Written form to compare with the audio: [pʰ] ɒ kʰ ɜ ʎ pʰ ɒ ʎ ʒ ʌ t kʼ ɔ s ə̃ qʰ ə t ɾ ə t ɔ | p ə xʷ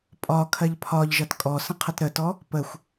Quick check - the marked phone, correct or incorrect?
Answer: incorrect